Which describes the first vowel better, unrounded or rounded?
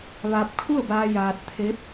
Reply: unrounded